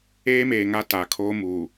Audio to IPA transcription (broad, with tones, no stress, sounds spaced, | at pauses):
eː˦ m eː˨ ŋ a˦ t a˨ kʰ oː˦ m uː˨